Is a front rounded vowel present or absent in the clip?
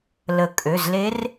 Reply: present